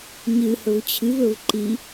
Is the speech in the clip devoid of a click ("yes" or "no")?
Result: no